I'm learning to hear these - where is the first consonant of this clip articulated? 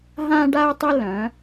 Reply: throat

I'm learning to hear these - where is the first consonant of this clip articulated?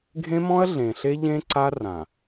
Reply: velum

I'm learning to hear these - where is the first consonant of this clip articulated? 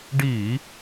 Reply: retroflex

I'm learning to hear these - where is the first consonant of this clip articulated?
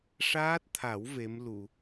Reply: retroflex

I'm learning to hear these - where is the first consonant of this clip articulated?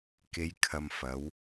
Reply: velum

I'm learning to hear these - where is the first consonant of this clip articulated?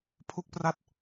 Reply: lips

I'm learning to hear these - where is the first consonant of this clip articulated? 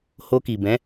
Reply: throat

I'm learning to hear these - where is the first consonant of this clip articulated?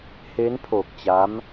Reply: throat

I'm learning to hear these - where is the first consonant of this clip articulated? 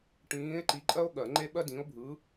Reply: retroflex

